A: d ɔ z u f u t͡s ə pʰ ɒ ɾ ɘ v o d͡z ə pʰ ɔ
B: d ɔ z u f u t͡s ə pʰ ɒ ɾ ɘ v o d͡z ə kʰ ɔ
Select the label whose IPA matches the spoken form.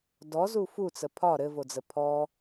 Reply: A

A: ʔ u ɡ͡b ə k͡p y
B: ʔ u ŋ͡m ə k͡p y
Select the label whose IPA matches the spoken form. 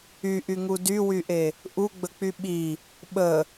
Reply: A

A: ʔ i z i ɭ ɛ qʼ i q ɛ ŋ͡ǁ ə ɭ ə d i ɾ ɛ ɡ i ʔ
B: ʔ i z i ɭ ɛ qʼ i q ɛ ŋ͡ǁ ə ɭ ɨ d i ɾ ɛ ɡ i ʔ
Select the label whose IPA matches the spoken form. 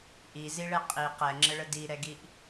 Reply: A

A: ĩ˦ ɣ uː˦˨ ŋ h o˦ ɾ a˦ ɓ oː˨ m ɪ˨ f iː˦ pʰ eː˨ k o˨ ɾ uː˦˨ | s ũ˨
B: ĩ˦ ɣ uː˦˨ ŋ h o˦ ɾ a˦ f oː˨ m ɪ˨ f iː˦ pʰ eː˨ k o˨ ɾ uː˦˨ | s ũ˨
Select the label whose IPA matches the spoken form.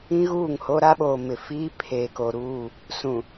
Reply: A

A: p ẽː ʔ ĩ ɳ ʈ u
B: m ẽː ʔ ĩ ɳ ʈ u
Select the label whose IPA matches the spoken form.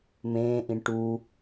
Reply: B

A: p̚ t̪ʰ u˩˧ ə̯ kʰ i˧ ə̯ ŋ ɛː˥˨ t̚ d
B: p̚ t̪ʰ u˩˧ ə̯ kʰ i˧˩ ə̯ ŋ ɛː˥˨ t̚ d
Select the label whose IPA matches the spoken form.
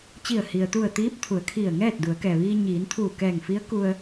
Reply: B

